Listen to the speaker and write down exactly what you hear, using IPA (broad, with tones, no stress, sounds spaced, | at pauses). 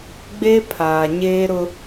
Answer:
ɡ͡b e˦ pʰ aː˨ ɲ eː˦ ɾ ʊ˦